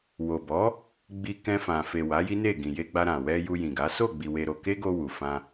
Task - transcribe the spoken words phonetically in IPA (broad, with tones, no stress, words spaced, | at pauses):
wo˨bɔ˨˦ | ɡ͡bi˧ kɛ̃˧fã˨fe˨ wa˨˦ji˦ne˦˨ɡĩ˨ je˧ɡ͡ba˧ɾã˨wɛ˧ ju˧jĩ˨ɡa˨˦ so˦˨ɡ͡bi˨ we˧ɾo˧ ke˦ɡo˧ wu˨fã˧